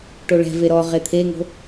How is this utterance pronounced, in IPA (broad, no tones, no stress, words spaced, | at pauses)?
ʈoɭɛ̤ve ɾɔ ʁet̪ʰeŋo̤